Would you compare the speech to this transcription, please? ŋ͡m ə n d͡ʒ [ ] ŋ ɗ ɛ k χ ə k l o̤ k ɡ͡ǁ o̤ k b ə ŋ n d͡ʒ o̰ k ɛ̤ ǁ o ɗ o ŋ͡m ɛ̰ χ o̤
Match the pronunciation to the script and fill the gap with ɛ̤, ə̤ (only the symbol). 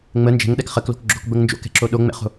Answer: ɛ̤